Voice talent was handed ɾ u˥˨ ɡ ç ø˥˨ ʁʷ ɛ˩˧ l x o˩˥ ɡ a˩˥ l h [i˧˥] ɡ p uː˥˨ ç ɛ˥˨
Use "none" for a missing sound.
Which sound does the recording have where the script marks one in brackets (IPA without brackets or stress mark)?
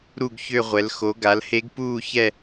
e˧˥